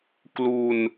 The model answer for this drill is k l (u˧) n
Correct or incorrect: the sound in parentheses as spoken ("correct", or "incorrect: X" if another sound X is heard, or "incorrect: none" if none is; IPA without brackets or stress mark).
correct